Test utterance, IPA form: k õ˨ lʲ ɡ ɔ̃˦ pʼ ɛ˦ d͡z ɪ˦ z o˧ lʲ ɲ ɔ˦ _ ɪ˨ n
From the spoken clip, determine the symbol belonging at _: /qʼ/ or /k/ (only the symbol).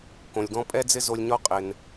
qʼ